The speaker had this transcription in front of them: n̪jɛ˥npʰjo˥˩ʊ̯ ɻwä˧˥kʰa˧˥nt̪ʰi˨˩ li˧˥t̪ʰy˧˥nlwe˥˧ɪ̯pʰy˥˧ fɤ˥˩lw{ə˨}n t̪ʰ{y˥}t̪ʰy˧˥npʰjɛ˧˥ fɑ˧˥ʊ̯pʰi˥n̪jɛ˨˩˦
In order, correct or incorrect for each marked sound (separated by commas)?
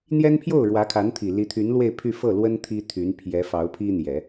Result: incorrect, incorrect